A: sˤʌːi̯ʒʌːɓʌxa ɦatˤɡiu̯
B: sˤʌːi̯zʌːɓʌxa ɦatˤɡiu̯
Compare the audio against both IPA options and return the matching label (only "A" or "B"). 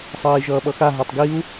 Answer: A